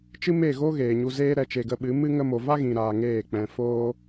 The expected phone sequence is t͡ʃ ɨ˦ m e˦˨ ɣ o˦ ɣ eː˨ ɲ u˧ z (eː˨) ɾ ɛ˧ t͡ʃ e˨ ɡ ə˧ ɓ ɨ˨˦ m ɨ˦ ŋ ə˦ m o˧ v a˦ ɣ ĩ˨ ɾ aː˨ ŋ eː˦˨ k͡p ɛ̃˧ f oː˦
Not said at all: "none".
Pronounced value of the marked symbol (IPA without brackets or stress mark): eː˦